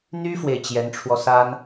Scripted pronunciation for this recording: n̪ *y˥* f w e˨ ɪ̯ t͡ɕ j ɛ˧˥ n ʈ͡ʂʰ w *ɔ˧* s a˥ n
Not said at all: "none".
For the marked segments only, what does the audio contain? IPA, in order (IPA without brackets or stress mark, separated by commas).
y˥, ɔ˧